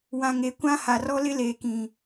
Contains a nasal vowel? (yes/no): yes